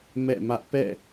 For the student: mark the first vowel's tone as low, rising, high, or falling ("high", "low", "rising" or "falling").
falling